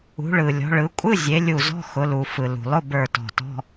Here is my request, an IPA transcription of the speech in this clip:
ṳ˩˧ ɭ ɯ˩ lʲ ɔ̤˩˧ ɭ ɯ˩˧ kʷʼ ɯ˧˥˧ zʲ e˩˧ lʲ u˧˩ z ɔ̤˧˥˧ x ʊ˩˧ l u˩ f ɯ˩ l ṳ˩ lˠ ʊ˧˥˧ b ə˞˧˩ t ɔ̤˧˩ t ɔ̤˧˥˧

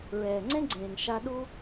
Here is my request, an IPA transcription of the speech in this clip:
ɹ ɛː˨ ŋ͡ǀ ẽ˦ ɡ͡ǀ ẽː˨ ŋ ʃ a˧ ɗ u˦

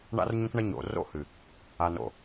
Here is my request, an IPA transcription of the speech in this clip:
ɳ a̰˦ r ɲ õ˦ k ɳ ɐ˦ ɲ o̰˨ r o̰˦ h ɨ˨ | a˨ n o̰˨

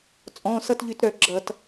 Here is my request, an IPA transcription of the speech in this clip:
t͡sʼ ɔ̃˩˧˩ s ʌ˥˨ t ʎ y˧˩˧ t ɾ œ˧˩˧ ɡ͡ǁ ʌ˧˩˧ t

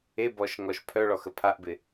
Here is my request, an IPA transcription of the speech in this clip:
e b ɔ ʃ ŋ ɔ ʃ pʰ œ ɭ ɔ x ə pʰ a ʔ b ɪ

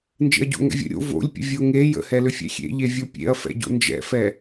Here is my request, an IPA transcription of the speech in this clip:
n d͡ʒ ḛ ɐ̯ ɟ o̰ ŋ ɛ̰ vʲ ə̰ ɾʲ o̰ v o̰ lʲ pʲ ə̰ vʲ o ŋ e j ə̰ h ɛ l ʏ fʲ ɛ̰ xʲ ḛ ʎ e vʲ o pʲ ḛ ɐ̯ f ɛ̰ ɟ o̰ n d͡ʒ ɛ̰ f ɛ

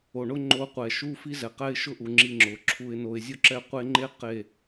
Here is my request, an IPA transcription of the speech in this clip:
o˨ ɳ ʊ˦ ŋ͡ǃ o˦ qʷ ɛ˨ ʃ u˦ f i˦ z ɛ˨ q ɛ˦ ɪ̯ ʃ ʊ˦ ʔ u˨ ŋ͡ǁ i˦ ŋ͡ǁ ʊ˨ ǁʰ u˦ ɪ̯ n o˦ ɪ̯ zʲ o˦ ǁ ɛ˦˨ qʷ e˦ ŋ͡ǃ e˦ q e˦˨

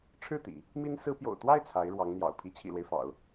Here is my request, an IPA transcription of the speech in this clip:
ʈ͡ʂʰ ɻ̩˥˩ t̪ ḭ˨˩˦ | m i˥ n s ɹ̩˥ p j o̰˨˩ ʊ̯ t̪ w a˥˩ ɪ̯ t͡sʰ a˧˥ ɪ̯ ɻ w ɑ˧˥ ŋ n̪ j ɑ̰˨˩ ʊ̯ pʰ i˧˥ t͡ɕʰ ḭ˨˩ l w e˦ ɪ̯ f ɑ̰˨˩˦ ʊ̯

